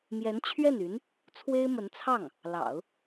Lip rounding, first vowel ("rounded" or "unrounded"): unrounded